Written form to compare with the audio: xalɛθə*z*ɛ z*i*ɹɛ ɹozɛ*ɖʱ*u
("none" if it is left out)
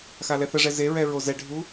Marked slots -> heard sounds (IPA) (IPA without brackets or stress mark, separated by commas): ʐ, e, ɖʱ